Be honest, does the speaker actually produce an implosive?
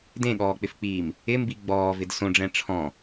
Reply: yes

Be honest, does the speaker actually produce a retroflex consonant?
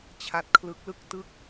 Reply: no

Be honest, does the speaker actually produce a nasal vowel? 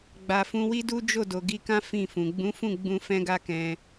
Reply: yes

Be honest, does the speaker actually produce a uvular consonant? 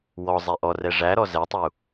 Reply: no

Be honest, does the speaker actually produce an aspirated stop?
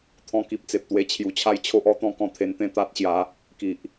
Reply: yes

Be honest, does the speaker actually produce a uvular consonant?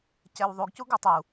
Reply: no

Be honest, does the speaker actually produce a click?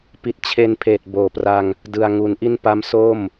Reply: no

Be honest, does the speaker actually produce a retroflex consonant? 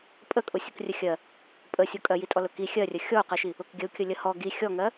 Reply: no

